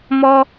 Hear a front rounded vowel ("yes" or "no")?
no